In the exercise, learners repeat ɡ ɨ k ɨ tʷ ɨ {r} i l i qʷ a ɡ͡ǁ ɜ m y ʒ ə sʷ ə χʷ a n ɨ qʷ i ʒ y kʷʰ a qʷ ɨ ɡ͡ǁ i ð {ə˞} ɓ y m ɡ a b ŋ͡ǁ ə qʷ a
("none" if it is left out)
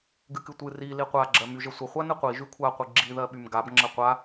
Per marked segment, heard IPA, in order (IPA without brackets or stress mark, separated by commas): r, ɜ